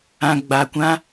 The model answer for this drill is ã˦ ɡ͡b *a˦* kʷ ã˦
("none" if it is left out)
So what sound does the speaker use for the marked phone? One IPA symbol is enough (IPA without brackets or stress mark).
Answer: a˦